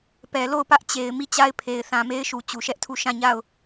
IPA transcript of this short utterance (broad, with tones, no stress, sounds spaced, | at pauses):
p ɛ˨ l o˦˨ ʊ̯ p ä˦ ʔ t͡ɕ e˨ ɪ̯ m i˦˨ t͡ɕ a˦ ɪ̯ pʰ e˨ ɪ̯ θ ã˨ m e˦ ɪ̯ ʃ u˨ t͡ɕ u˨ ʃ ɛ˦ ʔ tʰ u˦˨ ʃ ã˦˨ ɲ a˦˨ ʊ̯